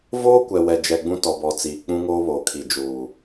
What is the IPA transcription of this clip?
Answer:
v oː˦ kʷ ɛ˨ w ɛ˨ d͡ʒ ɛ˨ ɡ͡b ũ˦ t ɔ˨ b ɔ˨ t͡s iː˨ k͡p ũ˦ ŋ oː˦ β oː˨ kʰ i˨ d͡ʒ uː˨

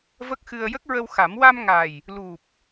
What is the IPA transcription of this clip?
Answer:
v ə˦˥ k̚ x ɨ˧ ə̯ j ə˦˥ k̚ ɹ ə˧ w x a˨˩˦ m w a˧ m ŋ a˨˩ j | l u˨˩ p̚

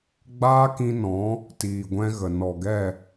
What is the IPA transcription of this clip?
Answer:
ɡ͡b aː˦ k ĩ˧ n ɔ̃˨˦ | t iː˨ ɡʷ ɛ̃˦ ɣ ə˨ n ɔ˨ ɡ ɛ˦˨

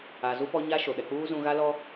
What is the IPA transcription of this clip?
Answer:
a˨ z u˦ p ɔ˦ ɲ a˦ ʃ o˨ ɗ ɛ˨ k͡p uː˦ z ũ˦ ɣ a˦ l ɔ˦

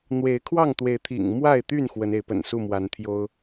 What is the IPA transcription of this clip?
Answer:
n̪ w e˨˦ ɪ̯ kʰ w ɑ˥˨ ŋ t̪ w e˨˦ ɪ̯ t̪ʰ ḭ˨˩ ŋ m w a˥˨ ɪ̯ t̪ y˥˨ n x w ə˨˦ n e˨˦ ɪ̯ p ə̰˨˩ n s u˥˨ m w a˨˦ n t̪ʰ j o˦ ʊ̯

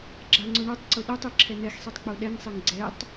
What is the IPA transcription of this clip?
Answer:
ɡ͡ǁ a ŋ͡ǀ ʊ ɳ o tˤ ǀ ʊ ɗ o tˤ ɛ ǁʰ ɛ n̪ ɛ x sˤ e tˤ k͡p o ɗ ɛ ŋ sˤ e ŋ ɡ͡ǀ ɛ tˤ

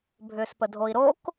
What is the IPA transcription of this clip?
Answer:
bʱ ʏː s p ə dʱ o i̯ ɾ o k

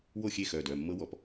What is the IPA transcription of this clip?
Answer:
w o˥˨ xʲ e˥˨ x œ˩˧˩ d œ˩˧˩ mː ɤ˦˥ w ɔ˨˩˦ p

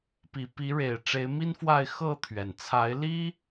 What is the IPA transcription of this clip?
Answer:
p i˨˩ p i˨˦ ɻ e˨˩ ɪ̯ ʈ͡ʂ e˨˦ ɪ̯ m i˦ n f w a˥˨ ɪ̯ x ɤ˥˨ t̪ʰ ɥ ɛ˩ n t͡sʰ a˨˦ ɪ̯ l i˦

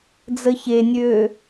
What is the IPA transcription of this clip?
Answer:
d͡z ə ç e nʲ øː

